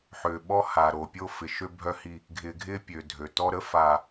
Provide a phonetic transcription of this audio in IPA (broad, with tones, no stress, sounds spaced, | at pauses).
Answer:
ħ ʏ˨ ɓ ɔ˦ h a˨ ɾ o˨ pʲ o˦ f ɪ˨ ʃ ø˦ bʱ œ˦ h i˦ | ɡʱ ɪ˨ ɡʱ ɪ˦ pʲ ø˨ dʱ ø˨ t ɔ˦ ɾ ə˦ f a˨